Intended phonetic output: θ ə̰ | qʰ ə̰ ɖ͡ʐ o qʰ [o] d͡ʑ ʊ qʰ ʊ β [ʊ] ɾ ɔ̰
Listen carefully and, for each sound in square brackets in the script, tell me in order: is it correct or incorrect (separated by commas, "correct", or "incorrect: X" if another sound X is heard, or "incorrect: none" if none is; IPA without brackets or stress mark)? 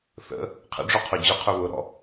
correct, correct